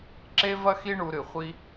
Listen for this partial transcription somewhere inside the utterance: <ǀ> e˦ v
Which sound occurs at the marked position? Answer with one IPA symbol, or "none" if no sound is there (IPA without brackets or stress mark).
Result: ǁ